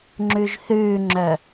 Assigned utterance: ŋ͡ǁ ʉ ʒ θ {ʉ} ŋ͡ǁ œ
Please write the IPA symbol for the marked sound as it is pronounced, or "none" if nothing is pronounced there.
ʉː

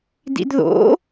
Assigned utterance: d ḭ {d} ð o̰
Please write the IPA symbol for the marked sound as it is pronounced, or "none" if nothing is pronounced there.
d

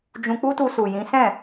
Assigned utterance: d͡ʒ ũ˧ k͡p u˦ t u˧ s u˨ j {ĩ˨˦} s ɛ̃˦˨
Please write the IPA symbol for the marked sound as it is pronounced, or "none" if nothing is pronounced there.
ĩ˨˦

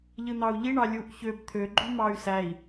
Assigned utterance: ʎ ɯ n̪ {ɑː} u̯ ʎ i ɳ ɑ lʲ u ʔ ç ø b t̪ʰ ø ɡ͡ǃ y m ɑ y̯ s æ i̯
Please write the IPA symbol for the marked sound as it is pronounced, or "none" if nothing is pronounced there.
ɑ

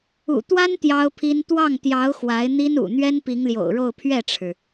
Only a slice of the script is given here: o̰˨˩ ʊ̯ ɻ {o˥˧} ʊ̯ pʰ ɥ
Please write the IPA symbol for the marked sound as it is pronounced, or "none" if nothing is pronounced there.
o˥˧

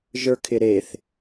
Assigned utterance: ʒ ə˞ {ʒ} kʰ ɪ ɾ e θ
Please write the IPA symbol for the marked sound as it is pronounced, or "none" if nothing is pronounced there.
none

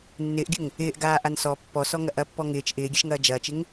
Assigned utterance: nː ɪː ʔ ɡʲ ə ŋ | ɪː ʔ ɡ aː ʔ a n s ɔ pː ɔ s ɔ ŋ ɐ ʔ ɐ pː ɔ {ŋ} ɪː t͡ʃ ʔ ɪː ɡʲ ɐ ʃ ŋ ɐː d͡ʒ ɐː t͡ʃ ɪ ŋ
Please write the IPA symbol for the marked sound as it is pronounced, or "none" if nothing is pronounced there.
ŋ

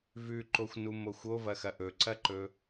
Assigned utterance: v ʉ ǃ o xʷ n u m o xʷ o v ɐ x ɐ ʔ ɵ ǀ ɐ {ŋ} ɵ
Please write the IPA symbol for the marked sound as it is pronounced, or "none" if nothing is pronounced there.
ǃ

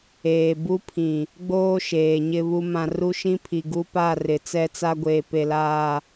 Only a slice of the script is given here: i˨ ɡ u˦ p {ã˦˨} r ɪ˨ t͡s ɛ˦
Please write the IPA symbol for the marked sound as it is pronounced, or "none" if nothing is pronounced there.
a˦˨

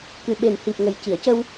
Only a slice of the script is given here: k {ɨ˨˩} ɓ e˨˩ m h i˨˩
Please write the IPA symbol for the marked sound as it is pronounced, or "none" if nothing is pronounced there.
ɨ˨˩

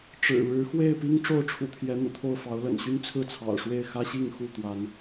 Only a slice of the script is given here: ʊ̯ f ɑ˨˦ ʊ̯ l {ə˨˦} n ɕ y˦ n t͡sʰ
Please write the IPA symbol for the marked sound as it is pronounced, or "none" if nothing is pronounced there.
ə̰˨˩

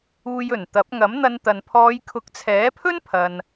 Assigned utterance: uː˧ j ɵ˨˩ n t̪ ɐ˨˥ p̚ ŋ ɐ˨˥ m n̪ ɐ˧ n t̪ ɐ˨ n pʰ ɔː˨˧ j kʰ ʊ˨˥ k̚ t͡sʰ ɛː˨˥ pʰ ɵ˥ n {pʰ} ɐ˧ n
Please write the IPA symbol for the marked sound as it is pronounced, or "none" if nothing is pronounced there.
pʰ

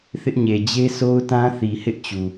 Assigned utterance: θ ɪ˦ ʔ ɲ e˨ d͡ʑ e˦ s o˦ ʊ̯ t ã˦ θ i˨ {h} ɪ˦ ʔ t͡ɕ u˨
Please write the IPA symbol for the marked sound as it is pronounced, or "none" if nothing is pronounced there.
h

